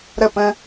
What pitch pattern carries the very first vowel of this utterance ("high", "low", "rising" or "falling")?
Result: falling